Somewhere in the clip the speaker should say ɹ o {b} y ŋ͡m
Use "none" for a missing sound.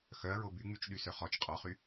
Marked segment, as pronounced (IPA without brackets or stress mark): b